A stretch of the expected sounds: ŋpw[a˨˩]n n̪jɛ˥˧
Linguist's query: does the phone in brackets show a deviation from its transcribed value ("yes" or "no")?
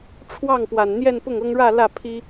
no